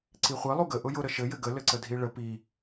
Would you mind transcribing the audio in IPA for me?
ǀ i χʷ ɘ lˠ u ɡ ə ʔ ʊ j ʊ ɾ ə ʃ ɘ j ɘ ɡ ə l ɘ ǀ ə dʱ i ɭ ə p i

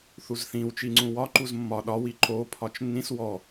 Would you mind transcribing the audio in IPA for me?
θ u z θ ĩ w t͡ʃ i ŋ͡ǀ ũ w ɒ ǃ u z mː ɒ ɗ ɒ w i ǃ o pʰ ɒ t͡ʃ nː ĩ s w ɔ

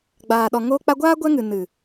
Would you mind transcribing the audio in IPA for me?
ɡ͡b aː˨ ɗ ɔ˨ ŋ oː˧ k͡p a˧ ɡʷ aː˦ ɡʷ ɛ˦ ŋ ɨ˨ n ɨ˨

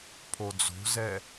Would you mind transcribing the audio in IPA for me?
pʰ o d͡z o̤ z ɛ

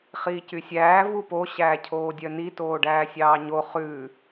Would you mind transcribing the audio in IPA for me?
χ iː c y sʲ æː v u p o ɕ æː cʰ oː dʲ œ n i t oː ɖ æː sʲ ɑː ɲ o χ ʉ

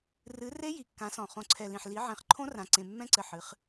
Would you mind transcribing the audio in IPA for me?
r ɨ˨˦ r e˦˥ j i˨ kː ã˨˦ s ɔ̃˨ χ õ˨ ǀʰ ɛ˨ l ĩ˨ ħ l i˨˦ ʕ ẽ˨˦ χ ǃʰ õ˦˥ r ã˨ ǀ ẽ˨ mː ɛ̃˦˥ ǀ ɘ˨ ħ ɨ˨˦ χ

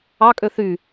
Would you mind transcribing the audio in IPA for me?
ɑ kʼ ø θ y

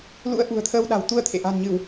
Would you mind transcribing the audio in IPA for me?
l ṵ˧˥ ə̯ ʔ ṳ˨˩ ə̯ t̪ʰ əː˧ w ɗ a̤˨˩ w t̪ u˧ ə̯ t̪ʰ ḛ˧˨ ʔ a̤˨˩ n ɲ ɨ˧˩˨ w

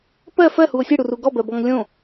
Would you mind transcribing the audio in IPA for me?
p ɜ f ɜ h u o̯ sʲ ɨ ɽ u r u ɡ ɔ b ɜ b ɔ ŋ lʲ õ

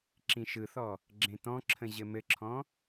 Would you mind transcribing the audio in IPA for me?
ǁ ĩ ʃ ɯ θ ɔ | ɡ͡ǁ ẽ t ɔ̃ ǁʰ ə̃ ʑ ɘ m ɘ ǁʰ ɔ̃

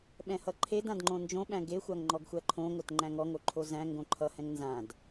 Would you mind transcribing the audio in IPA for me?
ɓ ɛ̃ h ʌ ǃʰ e d ã d ŋ͡ǃ õ n d͡ʒ õ ɓ æ̃ ɡ e xʷ a ŋ ŋ͡ǃ ɔ ɡ xʷ æ ǃʰ õ ŋ o t ŋ͡ǃ æ̃ ŋ ɔ ŋ o ǃʰ o z æ̃ ŋ ɡ õ ǃʰ ʌ h ɛ̃ ŋ n z ã d

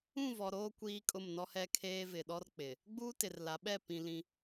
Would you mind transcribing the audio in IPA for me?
ũ˦˨ v ɔ˨ ɾ oː˦ kʷ iː˦ kʼ ʊ˦˨ m n ɔ˦ h ɛ˦ kʰ eː˦ v ɪ˨ ɗ ɔ˦ r k͡p ɪ˨ | ɡ͡b uː˦ t ɪ˨ r l a˨˦ ɓ ɛ˦˨ p ĩ˨ l ĩ˦

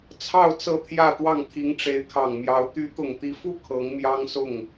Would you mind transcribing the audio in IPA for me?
t͡sʰ ɑ˥˧ ʊ̯ t͡s ɤ˥˧ t̪ʰ j ä˥˧ t̪ w ɑ˥˩ ŋ t̪ʰ i˧˥ ŋ ʈ͡ʂ e˧˥ ɪ̯ kʰ ɑ˨˩ ŋ m j ɑ˧˥ ʊ̯ t̪ y˧˥ t̪ ʊ˨˩ ŋ t̪ i˧˥ f u˥ kʰ ɤ˧˥ ŋ m j ɑ˥ ŋ s ʊ˥˩ ŋ

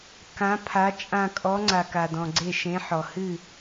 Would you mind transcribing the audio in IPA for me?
k ã˨˦ pʰ a˨˦ t͡ʃʼ ã˧˩ kʼ ɔ˨˦ ŋ͡ǀ a˩ k a˩ d ɔ̃˩ ɡ͡ǀ e˧˩ ʃ ẽ˨˦ ħ ɔ˩ h ɨ˥˨

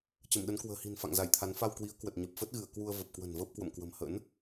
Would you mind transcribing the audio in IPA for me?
t͡ɕ ə˧˩ m ɗ ə˨˦ n k w ə̤ː˨˩ h i̤˨˩ n f a̰˧˨ ŋ z a˧˩ j t̪ʰ a˨˦ n f a˧ w k w i˨˦ ə̯ k w ə˨˩ t̚ ɲ ə˨˩ p̚ f ə˦˥ t̚ ɣ ɨ˧˩ ə̯ k w u˧ ə̯ v ə˨˩ p̚ k w ə̤˨˩ n v əː˦˥ p̚ k w ə̰˧˨ m k w ə̤˨˩ m h ə̰˧˥ n

